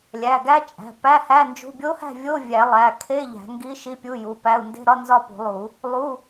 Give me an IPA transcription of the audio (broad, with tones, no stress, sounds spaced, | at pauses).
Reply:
lʲ æ˩˧˩ ɡ æ˦˥ t͡ʃʼ æ̤˩˧˩ p æ˧˥˧ h æ˧˥˧ n d͡ʒ ṳ˧˥˧ bʲ o˦˥ h æ̤˥˨ vʲ o˧˥˧ vʲ æ˨˩˦ lˠ æ˩˧˩ kʰ e˧˥˧ ʎ æ̤˨˩˦ ŋ ɡ i˦˥ ʃ i˧˥˧ pʲ u˧˥˧ j u˩˧˩ p æ˧˥˧ u̯ n d e̤˧˥˧ ɾ ɒ˧˥˧ n z ɒ˥˨ p ṳ˨˩˦ lˠ u˨˩˦ | lˠ u˧˥˧